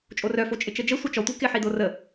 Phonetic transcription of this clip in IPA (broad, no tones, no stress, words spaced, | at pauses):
t͡ʃʼorœfo t͡ʃʼɪt͡ʃəd͡ʒə sʷœt͡ʃɔtʷi kɪħi dorə